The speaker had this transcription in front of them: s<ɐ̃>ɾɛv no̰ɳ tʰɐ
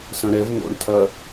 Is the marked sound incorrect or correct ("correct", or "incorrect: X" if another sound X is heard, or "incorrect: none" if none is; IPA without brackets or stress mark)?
correct